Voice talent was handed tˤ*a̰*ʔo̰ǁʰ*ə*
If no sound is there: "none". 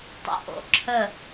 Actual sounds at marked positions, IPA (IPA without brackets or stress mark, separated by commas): ə̰, ə